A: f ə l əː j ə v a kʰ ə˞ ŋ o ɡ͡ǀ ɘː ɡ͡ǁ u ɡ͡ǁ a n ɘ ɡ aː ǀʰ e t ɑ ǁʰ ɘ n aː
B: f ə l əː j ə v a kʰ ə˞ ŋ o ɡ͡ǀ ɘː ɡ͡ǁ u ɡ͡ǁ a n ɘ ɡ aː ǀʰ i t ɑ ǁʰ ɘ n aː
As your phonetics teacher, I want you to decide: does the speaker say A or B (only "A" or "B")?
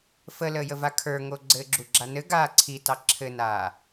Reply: B